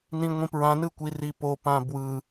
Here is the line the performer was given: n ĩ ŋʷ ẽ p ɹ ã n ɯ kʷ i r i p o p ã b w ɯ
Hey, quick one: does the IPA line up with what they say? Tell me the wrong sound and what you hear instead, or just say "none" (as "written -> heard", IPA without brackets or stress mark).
ẽ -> ĩ